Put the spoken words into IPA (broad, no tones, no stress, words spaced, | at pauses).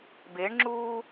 beɳŋ͡ǁuː